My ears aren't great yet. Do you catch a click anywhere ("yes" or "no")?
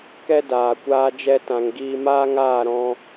no